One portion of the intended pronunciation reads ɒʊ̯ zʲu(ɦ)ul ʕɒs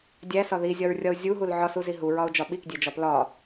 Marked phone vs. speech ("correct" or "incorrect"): correct